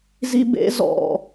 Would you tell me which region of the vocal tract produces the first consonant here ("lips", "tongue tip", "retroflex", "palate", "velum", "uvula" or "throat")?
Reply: tongue tip